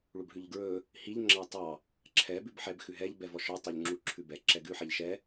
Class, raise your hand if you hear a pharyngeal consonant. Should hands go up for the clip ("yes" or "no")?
yes